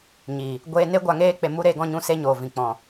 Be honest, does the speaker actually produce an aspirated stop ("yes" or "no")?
no